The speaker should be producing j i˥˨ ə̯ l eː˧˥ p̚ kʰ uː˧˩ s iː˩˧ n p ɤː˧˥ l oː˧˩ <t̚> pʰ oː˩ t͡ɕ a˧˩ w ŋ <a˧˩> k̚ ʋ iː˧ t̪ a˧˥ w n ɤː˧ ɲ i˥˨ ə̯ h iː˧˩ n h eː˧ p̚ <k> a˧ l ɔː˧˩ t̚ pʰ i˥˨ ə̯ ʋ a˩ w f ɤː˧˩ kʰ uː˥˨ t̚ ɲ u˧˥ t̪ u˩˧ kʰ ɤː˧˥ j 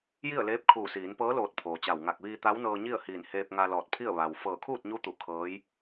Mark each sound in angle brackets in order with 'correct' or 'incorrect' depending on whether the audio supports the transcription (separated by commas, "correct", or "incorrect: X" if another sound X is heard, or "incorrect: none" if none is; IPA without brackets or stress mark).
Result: correct, correct, incorrect: ŋ